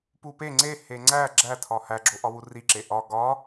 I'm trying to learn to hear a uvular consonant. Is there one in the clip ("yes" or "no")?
no